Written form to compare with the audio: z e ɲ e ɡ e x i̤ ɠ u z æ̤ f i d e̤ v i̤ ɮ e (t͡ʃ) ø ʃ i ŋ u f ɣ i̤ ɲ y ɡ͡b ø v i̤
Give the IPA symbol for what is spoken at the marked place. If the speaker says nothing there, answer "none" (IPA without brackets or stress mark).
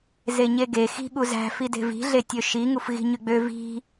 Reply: tʲ